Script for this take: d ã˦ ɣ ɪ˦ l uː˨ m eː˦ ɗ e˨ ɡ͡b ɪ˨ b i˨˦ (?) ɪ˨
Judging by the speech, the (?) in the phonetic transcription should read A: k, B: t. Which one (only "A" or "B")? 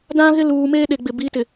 B